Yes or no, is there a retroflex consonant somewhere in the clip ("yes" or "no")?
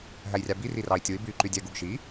no